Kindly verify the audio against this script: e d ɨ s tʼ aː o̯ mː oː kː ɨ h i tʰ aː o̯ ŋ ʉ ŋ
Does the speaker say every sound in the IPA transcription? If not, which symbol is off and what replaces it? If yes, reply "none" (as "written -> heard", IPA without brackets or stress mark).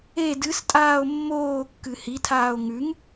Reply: none